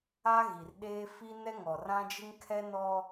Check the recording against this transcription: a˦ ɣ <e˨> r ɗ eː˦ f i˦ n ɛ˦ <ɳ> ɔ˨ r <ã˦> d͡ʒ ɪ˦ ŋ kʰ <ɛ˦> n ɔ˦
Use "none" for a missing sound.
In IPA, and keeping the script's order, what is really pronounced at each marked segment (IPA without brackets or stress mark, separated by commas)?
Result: i˨, ŋ, ã˦, ɛ˦